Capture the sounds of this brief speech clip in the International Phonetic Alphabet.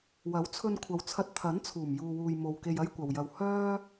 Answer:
w ɐ˨˥ w t͡sʰ ɵ˧ n kʷʰ ɐ˨ w t͡sʰ ɐ˧ t̚ t̪ʰ ɐ˨˥ n t͡sʰ uː˨˩ m j uː˧ w uː˧ j m o˧ w k e˧ j ɐ˥ j kʷ ɐ˨ w j ɐ˧ w h œː˥

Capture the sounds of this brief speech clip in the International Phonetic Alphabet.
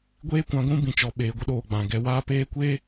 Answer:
ɡʷ eː˦ kʷ ã˧ ɡʷ ũ˦ b ĩ˨ t͡ʃ ɔ˨ ɓ eː˨ ɡʷ ə˧ ɗ oː˨ ɡ͡b ã˨ ɡ ɛ˧ w aː˧ p eː˧ kʷ eː˦

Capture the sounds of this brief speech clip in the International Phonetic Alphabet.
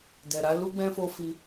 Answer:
d ɛ˨ ɾ a˨˦ l u˦ ɡ͡b ɛ̃˧ f o˧ f i˧

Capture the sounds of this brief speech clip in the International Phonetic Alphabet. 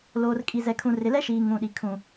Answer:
l oː˨ r kʼ i˨ z ɛ˨ kʰ ũ˨ r ɪ˨ l ɛ˦ ʃ iː˨ ŋ ũ˨ ɗ i˨ kʰ ũ˨

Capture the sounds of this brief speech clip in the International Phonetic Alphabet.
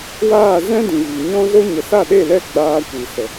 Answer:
w aː˦˨ z ɛ̃˦ d ĩ˨ v i˨ ɲ ɔ̃˦ z o˦ ɲ ə˨ s a˦˨ ɗ e˦˨ l ɛ˦˨ ɡ͡b aː˧ kʷ i˨ s ə˨

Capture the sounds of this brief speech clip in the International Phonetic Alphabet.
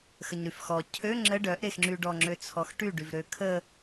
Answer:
x ə ɲ ɾ y f x ɔ cʰ ø ŋ͡ǁ ə ɖ œ ʔ ɾ e x ŋ͡ǁ y ɖ ɔ ŋ͡ǁ ø t͡sʰ ɔ x ʈ y ɖ y v ɾ ø kʰ ə

